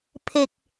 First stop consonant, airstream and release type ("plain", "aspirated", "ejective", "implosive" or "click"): aspirated